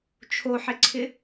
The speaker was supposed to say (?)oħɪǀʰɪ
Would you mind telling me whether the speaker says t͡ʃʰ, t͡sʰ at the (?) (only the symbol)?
t͡ʃʰ